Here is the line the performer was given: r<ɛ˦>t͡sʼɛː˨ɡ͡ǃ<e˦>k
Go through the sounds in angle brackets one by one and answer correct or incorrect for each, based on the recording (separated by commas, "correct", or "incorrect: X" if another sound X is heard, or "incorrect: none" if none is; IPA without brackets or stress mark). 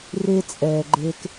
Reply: incorrect: e˦, correct